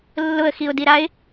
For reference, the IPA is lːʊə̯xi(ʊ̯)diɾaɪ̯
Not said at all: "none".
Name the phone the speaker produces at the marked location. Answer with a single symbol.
ʊ̯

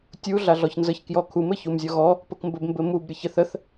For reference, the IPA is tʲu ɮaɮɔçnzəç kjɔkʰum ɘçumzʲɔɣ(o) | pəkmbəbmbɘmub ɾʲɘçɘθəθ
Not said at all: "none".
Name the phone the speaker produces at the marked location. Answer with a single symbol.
ɔ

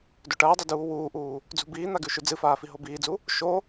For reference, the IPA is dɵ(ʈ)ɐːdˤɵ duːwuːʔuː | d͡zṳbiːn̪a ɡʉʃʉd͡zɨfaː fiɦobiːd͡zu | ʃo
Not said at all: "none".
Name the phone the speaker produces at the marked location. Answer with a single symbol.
ʈ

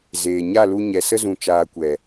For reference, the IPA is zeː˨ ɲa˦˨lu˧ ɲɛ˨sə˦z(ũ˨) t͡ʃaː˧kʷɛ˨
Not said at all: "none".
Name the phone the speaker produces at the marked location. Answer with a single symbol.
ũ˨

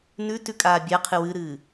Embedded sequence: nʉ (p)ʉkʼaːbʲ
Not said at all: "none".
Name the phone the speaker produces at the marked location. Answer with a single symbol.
t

